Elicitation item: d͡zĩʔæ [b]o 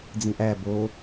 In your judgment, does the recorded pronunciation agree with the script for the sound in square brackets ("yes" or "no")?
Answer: yes